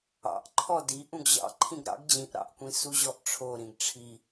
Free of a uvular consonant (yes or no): yes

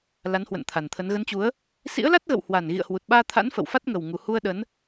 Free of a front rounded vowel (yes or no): yes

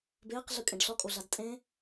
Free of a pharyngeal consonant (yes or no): yes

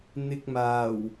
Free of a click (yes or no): yes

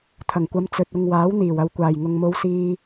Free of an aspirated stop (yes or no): no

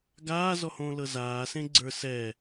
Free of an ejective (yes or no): yes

